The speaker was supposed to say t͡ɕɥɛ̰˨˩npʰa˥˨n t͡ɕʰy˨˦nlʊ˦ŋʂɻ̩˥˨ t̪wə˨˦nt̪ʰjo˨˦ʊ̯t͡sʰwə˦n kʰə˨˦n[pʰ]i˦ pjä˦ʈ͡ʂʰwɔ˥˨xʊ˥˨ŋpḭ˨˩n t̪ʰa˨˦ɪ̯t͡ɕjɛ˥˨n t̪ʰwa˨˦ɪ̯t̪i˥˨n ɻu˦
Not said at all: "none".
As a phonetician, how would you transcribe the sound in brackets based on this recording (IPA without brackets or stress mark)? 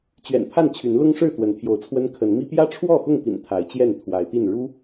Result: m